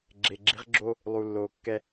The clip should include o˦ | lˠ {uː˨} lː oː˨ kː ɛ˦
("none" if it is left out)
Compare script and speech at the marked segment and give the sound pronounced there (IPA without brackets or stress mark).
u˨